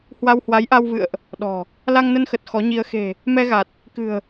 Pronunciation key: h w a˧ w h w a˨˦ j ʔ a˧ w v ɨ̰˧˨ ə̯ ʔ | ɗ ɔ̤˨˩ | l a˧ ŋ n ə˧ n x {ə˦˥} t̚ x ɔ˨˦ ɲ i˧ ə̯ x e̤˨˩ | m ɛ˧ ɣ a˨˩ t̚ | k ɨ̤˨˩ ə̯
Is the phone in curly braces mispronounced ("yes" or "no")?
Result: yes